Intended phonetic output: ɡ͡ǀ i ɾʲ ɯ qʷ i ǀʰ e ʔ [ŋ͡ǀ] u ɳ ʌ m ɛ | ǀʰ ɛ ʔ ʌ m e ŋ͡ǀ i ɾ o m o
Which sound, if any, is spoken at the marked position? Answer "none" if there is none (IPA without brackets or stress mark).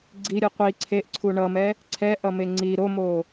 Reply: ǀʰ